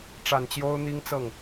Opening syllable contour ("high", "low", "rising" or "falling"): low